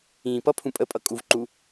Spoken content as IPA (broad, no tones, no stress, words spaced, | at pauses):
ĩːpʌpʰũ pʼəpʼʌ kʼuvǃu